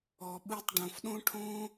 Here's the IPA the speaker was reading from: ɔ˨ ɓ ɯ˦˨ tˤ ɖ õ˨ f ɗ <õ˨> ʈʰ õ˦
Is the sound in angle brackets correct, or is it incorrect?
incorrect